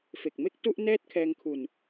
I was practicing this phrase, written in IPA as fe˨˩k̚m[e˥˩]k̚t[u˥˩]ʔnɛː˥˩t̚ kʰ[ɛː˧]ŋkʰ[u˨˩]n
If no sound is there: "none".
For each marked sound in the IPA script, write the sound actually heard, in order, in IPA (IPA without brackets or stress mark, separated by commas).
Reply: e˥˩, u˥˩, ɛː˧, u˨˩